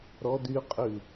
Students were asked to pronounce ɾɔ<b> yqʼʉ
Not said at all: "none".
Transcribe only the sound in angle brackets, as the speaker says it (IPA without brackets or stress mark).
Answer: d